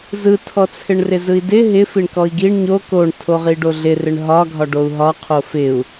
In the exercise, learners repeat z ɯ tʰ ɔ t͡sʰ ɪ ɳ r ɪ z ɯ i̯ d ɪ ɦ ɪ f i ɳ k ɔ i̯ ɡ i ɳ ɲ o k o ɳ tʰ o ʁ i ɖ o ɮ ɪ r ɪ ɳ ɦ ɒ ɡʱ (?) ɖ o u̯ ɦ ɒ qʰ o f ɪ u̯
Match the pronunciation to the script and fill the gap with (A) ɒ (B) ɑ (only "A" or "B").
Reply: A